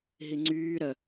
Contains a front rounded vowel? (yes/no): yes